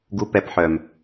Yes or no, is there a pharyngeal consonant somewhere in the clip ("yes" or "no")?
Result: yes